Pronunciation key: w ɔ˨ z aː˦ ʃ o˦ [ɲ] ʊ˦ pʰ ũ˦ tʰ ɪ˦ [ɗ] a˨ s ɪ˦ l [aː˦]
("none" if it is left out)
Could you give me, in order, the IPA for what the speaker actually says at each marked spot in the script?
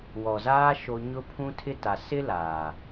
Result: ɲ, t, aː˨

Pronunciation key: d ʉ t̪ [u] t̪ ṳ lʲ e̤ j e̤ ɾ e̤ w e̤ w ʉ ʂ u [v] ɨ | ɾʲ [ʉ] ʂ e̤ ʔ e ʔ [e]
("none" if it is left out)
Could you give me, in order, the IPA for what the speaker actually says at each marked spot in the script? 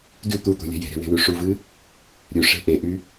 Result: u, v, ʉ, y

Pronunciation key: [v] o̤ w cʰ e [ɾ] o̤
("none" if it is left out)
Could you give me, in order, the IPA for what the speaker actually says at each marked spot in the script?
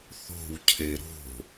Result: θ, ɾ

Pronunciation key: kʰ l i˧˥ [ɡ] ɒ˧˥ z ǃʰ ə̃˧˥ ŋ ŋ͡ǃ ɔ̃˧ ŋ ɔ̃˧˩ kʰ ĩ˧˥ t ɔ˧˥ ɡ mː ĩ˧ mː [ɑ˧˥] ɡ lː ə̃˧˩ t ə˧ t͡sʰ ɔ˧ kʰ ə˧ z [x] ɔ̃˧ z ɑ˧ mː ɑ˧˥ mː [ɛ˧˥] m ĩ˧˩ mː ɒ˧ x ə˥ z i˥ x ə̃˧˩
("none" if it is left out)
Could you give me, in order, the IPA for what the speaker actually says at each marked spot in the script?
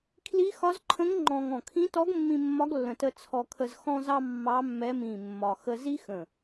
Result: x, ɒ˧˥, x, ɛ˧˥

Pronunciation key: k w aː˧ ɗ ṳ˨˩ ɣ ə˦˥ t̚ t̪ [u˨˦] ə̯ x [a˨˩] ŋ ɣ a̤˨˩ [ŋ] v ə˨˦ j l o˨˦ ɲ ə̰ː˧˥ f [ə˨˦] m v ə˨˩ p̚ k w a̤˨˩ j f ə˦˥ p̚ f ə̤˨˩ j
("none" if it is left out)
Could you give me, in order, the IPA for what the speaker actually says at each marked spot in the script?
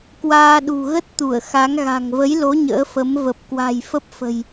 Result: u˧˩, a˨˦, ŋ, ə˨˦

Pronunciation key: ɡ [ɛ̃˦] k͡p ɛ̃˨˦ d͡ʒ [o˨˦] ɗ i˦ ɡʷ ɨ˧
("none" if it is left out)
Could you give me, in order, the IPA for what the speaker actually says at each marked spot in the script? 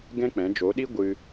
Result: ɛ̃˦, o˨˦

